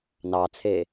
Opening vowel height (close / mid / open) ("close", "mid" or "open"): open